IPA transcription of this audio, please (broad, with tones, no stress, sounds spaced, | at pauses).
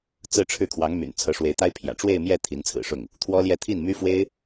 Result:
t͡s ɹ̩˥˧ ʈ͡ʂʰ ɻ̩˥˩ kʰ w ɑ˧˥ ŋ m y̰˨˩ n t͡sʰ ɤ˧˥ ʂ w e˧˥ ɪ̯ t̪ a˥ ɪ̯ pʰ j ä̰˨˩ ʈ͡ʂ w e˥˧ ɪ̯ m j ɛ˥˩ t̪ʰ i˧˥ n t͡sʰ ɹ̩˨˩ ʂ ʊ˥˩ ŋ | t̪ʰ w ɔ˥ l j ɛ˥˧ t̪ʰ i˥˩ n m y˥ f w e˥ ɪ̯